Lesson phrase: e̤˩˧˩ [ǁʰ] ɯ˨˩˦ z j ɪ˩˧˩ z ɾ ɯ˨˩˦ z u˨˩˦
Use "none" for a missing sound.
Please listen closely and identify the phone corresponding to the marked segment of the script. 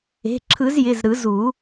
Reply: ǁʰ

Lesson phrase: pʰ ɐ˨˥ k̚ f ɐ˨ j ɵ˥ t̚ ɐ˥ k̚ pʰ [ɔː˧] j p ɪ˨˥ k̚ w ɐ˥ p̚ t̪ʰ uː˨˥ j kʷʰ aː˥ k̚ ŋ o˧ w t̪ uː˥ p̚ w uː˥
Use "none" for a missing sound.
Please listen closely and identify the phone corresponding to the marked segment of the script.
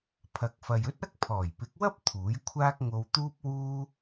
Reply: ɔː˨˩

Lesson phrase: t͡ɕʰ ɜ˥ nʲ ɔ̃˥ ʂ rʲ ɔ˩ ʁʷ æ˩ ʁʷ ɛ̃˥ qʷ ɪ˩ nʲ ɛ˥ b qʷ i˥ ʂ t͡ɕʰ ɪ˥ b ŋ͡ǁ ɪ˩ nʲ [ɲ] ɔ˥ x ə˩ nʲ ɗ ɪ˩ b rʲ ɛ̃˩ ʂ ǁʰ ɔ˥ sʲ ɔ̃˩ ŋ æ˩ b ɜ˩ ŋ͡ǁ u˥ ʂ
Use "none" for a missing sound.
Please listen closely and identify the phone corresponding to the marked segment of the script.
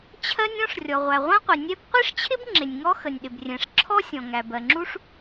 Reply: ŋ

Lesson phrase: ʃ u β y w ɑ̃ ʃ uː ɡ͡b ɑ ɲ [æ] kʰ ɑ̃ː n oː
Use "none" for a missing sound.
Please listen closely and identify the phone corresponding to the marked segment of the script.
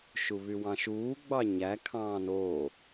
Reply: æ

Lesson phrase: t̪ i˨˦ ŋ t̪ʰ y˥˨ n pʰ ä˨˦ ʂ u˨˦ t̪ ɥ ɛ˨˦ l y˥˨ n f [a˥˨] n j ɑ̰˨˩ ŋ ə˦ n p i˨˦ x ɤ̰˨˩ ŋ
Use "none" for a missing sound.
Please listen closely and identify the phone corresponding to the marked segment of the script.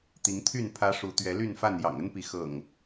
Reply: a˥˨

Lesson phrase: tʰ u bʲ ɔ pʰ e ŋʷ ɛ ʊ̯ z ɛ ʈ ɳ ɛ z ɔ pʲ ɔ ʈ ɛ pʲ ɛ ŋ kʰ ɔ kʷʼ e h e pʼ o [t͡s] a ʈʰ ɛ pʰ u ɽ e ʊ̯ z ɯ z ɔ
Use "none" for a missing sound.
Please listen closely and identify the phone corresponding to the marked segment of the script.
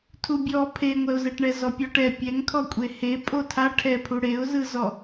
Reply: tʰ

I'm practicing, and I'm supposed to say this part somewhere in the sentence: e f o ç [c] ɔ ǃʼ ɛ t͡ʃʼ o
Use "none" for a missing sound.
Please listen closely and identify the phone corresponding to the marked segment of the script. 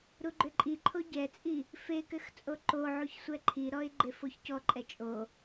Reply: c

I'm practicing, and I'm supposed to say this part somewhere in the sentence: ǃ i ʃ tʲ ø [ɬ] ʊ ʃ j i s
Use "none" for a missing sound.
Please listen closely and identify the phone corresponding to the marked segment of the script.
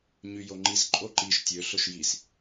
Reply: ɬ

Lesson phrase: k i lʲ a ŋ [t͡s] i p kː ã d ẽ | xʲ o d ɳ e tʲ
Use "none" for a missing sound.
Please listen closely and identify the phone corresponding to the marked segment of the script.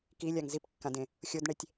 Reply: z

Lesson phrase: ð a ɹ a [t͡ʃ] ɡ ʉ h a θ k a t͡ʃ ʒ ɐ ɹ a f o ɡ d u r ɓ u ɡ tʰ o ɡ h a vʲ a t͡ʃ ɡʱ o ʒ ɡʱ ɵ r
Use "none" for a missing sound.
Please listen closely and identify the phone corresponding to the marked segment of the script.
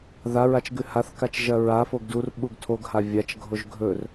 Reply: t͡ʃ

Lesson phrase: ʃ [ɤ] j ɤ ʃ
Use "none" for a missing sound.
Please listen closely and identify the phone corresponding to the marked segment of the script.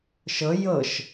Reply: ɤ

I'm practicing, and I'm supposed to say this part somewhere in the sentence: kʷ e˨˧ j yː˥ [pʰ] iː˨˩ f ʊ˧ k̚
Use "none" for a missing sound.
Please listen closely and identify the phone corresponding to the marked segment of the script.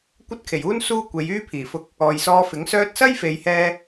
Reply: pʰ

